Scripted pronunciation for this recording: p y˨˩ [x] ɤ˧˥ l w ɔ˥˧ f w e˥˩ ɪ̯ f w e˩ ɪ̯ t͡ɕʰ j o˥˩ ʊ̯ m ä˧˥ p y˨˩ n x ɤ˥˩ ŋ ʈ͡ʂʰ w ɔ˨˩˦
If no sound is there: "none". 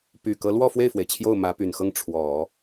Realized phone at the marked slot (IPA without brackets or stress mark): k